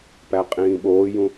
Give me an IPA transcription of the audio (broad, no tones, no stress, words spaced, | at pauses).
pæqʼĩːɓoːjũ